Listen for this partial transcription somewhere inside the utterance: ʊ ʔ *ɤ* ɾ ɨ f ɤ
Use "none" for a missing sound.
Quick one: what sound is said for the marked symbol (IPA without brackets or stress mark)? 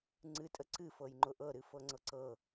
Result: ɤ